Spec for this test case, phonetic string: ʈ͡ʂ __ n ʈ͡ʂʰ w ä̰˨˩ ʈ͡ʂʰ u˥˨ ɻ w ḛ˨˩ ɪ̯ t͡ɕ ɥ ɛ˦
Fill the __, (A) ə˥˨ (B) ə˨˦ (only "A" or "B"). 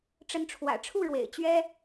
B